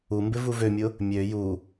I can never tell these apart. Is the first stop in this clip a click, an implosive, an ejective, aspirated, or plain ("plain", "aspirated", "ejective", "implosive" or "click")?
plain